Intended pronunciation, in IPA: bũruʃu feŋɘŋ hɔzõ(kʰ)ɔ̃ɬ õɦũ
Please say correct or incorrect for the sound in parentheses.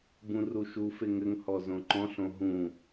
incorrect